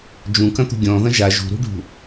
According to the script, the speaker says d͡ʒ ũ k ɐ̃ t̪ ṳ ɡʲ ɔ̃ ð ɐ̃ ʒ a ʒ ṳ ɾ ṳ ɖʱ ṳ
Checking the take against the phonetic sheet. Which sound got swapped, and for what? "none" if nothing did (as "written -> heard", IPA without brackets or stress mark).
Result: none